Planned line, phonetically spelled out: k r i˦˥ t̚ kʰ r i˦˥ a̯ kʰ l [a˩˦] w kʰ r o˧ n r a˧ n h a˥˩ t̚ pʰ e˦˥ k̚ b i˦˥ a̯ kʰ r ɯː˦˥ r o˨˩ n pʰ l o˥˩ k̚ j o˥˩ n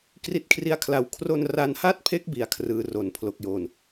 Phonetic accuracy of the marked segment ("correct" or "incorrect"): incorrect